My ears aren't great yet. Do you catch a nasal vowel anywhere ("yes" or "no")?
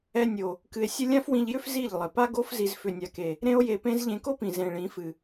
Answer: yes